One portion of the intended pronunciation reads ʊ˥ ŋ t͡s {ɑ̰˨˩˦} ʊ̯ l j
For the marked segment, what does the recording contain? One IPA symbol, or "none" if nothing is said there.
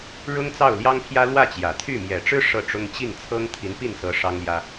ɑ˥˩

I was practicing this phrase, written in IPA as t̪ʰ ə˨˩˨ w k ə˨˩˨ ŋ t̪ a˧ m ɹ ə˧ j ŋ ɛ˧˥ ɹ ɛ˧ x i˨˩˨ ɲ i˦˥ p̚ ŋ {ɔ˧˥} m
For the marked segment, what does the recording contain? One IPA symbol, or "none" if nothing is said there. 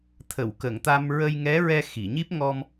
ɔ˧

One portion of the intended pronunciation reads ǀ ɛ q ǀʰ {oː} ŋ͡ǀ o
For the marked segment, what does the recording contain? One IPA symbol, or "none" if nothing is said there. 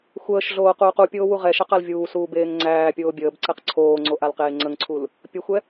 oː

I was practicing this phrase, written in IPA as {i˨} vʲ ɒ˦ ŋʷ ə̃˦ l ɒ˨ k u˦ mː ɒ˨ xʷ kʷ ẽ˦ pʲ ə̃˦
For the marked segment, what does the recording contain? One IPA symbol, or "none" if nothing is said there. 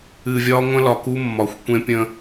ɨ˨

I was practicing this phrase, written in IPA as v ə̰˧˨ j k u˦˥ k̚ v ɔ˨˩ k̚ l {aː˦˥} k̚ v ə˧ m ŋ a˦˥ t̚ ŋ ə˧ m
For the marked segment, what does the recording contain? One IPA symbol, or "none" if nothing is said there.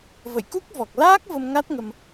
aː˦˥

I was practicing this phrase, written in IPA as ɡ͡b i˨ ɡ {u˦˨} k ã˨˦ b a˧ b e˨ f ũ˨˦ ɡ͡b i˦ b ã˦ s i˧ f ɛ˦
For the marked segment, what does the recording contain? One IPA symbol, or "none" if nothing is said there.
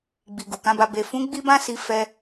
u˨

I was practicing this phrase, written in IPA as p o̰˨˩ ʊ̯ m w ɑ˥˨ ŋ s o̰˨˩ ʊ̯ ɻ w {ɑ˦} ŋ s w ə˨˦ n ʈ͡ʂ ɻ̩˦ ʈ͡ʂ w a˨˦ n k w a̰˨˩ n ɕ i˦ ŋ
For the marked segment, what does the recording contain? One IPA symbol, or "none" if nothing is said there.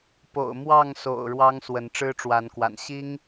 ɑ˦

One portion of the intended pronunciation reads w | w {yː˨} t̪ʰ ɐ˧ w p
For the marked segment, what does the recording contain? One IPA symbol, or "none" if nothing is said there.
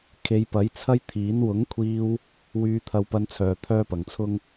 yː˧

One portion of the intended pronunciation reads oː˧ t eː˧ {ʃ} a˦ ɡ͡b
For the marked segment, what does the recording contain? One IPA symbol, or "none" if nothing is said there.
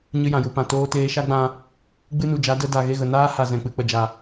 ʃ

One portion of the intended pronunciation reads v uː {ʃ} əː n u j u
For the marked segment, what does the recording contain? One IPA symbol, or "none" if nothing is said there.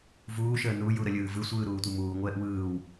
ʃ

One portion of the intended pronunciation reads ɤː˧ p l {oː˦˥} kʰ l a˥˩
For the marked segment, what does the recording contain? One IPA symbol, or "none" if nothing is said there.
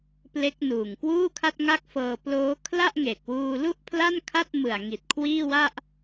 oː˦˥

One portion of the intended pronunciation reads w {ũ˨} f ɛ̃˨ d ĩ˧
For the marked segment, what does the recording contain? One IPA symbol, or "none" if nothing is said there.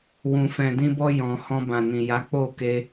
ũ˨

